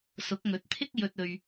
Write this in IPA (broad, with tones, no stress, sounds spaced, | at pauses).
s ʊ˨˥ k̚ ŋ ɵ˨˥ t̚ t̪ʰ ɪ˥ k̚ j ɵ˧ t̚ ɵ˧ ɥ